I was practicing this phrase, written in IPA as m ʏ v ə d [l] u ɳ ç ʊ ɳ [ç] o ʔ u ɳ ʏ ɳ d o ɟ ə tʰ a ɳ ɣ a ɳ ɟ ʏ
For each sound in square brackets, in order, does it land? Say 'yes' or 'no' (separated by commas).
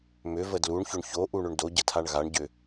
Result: yes, yes